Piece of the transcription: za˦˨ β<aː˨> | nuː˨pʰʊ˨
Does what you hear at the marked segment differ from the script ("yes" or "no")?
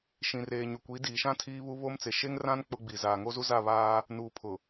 yes